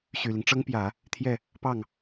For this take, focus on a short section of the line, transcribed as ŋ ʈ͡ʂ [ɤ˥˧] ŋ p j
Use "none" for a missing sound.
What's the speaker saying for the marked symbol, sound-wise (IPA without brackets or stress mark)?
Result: ɤ˥